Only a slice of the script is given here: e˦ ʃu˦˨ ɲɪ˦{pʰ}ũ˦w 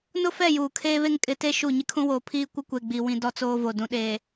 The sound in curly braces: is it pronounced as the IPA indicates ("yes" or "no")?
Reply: no